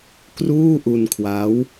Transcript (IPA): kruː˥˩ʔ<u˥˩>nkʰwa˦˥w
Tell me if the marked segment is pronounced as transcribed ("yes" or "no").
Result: no